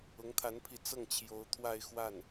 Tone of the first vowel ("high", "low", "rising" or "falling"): rising